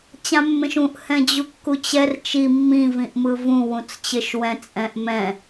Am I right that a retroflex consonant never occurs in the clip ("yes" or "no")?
yes